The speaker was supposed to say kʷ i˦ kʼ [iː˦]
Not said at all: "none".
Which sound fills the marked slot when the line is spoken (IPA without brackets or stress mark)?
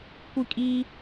iː˦